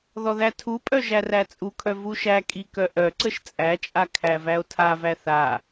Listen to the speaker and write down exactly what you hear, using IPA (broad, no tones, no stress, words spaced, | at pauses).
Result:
ðɔðætʰupʼœ ʒæræt͡sʼukʰœ vuʃækʼi kœʔœǀəʃ t͡sʼæt͡ʃʼa kʰævæo̯tʰavæ θa